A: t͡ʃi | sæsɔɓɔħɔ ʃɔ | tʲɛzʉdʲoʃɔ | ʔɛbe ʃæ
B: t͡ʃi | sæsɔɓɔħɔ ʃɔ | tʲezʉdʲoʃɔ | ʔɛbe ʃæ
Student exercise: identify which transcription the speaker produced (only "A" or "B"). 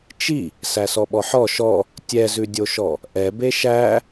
A